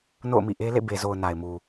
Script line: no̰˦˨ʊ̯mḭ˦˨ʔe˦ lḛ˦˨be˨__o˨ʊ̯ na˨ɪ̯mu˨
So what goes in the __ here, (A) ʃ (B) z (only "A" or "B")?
B